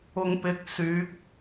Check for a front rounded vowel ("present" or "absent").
present